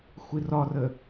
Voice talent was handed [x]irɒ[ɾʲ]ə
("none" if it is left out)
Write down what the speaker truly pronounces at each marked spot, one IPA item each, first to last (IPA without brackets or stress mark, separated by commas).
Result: xʷ, r